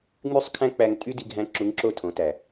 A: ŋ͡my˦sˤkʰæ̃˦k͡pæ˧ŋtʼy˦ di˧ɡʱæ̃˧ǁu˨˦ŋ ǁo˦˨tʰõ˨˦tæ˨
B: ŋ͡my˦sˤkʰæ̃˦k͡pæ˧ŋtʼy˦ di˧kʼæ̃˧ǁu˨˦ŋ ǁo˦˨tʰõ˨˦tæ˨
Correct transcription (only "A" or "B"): A